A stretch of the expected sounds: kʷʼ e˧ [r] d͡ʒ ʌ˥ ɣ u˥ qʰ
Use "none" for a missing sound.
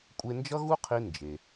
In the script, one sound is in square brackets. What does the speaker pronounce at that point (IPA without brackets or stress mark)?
n